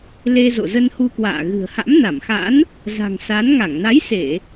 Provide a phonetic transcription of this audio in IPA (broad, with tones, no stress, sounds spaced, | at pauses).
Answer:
l e˧ z o̰˧˨ z ə˧ n h u˧ k w a̰ː˧˨ ɣ ɨ̤˨˩ ə̯ h a̰˧˥ m n a˧˩ m x a̰˧˥ n | z a̤˨˩ ŋ s a˨˦ n ŋ a˧˩ ŋ n a˨˦ j s e˧˩˨